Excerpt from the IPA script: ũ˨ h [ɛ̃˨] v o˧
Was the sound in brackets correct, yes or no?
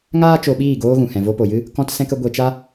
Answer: yes